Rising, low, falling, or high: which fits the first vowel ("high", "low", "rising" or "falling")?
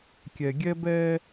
low